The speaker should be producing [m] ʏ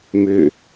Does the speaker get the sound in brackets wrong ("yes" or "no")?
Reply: no